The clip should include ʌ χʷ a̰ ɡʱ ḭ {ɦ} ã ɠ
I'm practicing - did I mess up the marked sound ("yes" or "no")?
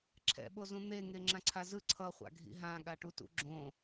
no